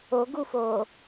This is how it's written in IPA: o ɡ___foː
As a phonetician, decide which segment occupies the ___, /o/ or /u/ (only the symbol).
u